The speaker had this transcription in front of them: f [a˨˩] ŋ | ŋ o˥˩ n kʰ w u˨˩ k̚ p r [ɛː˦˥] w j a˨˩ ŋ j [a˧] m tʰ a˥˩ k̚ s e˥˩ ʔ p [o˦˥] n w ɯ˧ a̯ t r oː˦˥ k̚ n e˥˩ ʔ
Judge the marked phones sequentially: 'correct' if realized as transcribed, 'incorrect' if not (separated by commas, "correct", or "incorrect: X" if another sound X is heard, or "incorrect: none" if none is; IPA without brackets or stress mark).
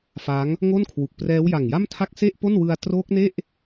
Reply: incorrect: a˦˥, correct, incorrect: a˥˩, incorrect: o˥˩